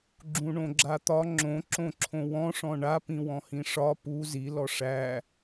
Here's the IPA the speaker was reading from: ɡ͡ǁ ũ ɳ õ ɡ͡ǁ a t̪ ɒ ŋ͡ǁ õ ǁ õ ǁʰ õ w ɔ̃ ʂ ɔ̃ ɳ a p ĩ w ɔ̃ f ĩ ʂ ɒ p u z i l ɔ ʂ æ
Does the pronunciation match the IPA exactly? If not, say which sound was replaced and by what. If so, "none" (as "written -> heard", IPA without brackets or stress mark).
f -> h